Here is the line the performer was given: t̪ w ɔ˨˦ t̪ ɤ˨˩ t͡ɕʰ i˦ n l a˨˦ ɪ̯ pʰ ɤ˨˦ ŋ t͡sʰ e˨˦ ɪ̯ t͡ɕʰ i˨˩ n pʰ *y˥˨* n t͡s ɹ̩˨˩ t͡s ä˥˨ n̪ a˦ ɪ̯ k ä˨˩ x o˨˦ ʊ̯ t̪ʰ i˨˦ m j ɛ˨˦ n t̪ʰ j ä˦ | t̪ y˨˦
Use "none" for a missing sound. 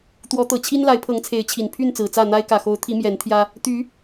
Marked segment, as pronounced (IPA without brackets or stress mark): y˥˨